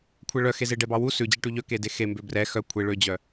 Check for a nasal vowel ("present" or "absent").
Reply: absent